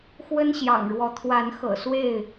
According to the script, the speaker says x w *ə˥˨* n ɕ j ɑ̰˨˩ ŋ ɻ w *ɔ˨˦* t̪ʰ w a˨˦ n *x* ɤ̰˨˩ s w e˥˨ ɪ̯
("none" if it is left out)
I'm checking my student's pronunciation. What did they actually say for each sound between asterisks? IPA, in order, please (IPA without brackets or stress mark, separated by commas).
ə˦, ɔ˨˦, x